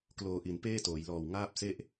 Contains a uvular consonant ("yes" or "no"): no